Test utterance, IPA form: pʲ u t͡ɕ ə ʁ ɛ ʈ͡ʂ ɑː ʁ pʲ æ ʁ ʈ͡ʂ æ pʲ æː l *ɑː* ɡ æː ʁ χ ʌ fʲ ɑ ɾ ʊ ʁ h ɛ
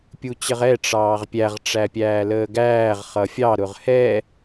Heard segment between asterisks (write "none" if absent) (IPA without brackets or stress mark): əː